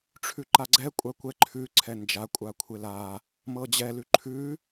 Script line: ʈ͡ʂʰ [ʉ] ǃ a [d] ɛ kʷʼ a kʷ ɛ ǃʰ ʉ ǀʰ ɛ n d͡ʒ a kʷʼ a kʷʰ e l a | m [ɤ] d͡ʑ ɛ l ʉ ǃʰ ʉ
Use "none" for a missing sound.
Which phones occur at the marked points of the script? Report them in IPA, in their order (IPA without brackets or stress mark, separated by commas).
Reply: ʉ, ɡ͡ǀ, ɤ